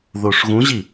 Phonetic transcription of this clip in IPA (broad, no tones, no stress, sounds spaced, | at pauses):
ð oː ʂ ɣ ũ ʑ i